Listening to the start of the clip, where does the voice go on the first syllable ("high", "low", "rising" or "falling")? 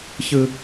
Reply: high